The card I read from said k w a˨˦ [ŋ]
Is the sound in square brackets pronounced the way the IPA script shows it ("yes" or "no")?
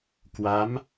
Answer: no